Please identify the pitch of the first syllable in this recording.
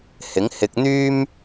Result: rising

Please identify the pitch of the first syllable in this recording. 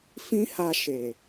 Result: high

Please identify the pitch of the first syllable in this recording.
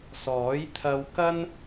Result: rising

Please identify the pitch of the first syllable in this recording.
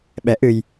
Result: rising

